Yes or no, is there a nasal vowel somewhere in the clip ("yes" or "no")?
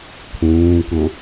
yes